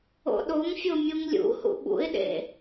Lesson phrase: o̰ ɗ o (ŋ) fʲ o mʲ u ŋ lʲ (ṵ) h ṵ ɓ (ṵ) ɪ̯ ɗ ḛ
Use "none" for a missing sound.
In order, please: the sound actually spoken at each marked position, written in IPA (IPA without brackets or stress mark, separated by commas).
ŋ, ṵ, ṵ